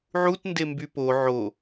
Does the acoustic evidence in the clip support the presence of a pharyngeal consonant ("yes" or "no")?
yes